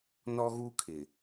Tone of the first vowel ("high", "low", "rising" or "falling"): high